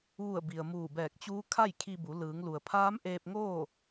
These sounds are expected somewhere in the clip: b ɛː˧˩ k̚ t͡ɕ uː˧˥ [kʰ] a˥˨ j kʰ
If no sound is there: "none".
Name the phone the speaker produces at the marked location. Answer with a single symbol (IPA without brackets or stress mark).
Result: kʰ